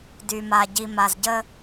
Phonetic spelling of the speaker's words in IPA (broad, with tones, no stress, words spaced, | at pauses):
dy˨ma˨ ɟi˨ma˨zɟə˧